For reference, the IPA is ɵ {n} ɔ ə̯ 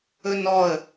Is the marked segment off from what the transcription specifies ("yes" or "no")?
no